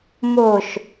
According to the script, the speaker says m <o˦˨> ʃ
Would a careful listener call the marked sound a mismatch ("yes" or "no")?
yes